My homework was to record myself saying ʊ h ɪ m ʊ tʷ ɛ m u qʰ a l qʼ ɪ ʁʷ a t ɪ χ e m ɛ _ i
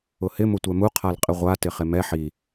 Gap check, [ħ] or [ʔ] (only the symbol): ħ